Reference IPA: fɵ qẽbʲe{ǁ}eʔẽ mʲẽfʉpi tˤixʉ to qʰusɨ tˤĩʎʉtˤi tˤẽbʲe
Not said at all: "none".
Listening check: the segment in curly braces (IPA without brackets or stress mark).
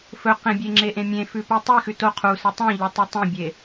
ŋ͡ǁ